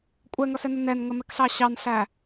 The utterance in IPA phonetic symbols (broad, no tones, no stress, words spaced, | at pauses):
kʷʼɛŋʌsɛnʊ nɛnŋəmɛkɬɑ ɕɑnɬæ